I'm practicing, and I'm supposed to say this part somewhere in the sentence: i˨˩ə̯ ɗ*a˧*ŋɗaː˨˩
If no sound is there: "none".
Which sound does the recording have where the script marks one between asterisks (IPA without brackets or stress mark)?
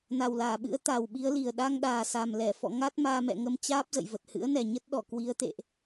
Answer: a˧